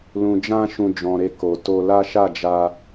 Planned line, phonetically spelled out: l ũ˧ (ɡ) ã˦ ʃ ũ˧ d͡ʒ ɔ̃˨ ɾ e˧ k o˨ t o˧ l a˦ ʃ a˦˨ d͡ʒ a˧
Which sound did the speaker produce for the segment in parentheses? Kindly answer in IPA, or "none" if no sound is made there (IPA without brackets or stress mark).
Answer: d͡ʒ